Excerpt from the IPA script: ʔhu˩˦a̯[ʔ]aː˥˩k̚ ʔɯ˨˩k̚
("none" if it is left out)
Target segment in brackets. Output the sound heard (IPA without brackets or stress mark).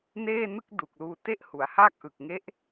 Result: h